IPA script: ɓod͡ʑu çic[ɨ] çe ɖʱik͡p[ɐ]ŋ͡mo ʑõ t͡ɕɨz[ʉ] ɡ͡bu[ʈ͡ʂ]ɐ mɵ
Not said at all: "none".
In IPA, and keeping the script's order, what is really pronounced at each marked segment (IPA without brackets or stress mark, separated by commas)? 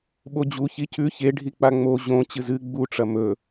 ʉ, a, ɨ, ʈ͡ʂ